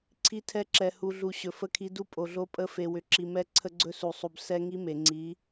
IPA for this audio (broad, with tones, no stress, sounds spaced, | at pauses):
ǀʰ i˦ tʰ ɛ˦ ǁ ɛ˨ h u˨ ɮ u˨ ɕ ɵ˨ f ə˦˨ kʰ i˦ d u˦ pʼ o˨ ɮ o˦ pʼ ə˦˨ f e˨ w ʏ˨ ǁ i˨ m ɛ˦ ǀʰ ə˦ ɡ͡ǀ ɵ˦ s u˨ sˤ u˨ b s ɛ˦ ŋ i˦ m e˨ ŋ͡ǀ i˨˦